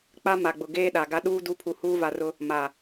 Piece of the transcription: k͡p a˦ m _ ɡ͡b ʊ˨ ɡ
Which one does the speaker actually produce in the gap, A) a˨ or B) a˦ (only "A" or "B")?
A